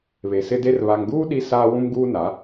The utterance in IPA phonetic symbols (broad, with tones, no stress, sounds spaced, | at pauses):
β e˨ s ɪ˦ d e˦ r β a˨ ŋ ɡ uː˦ ɗ i˦ s aː˦ w ũ˦ m ɡ uː˦ n a˨˦